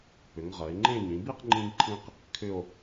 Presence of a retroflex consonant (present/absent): absent